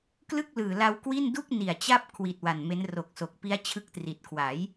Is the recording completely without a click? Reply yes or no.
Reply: yes